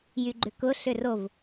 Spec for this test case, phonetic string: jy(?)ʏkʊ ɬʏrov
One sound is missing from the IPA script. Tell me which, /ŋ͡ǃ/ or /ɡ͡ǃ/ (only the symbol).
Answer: ɡ͡ǃ